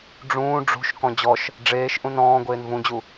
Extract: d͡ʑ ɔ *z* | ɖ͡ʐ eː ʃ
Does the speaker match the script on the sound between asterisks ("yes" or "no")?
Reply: no